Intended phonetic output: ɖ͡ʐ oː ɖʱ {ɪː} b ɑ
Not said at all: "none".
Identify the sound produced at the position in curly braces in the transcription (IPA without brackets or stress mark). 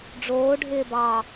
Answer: ɪː